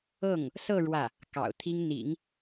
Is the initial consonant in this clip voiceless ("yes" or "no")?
no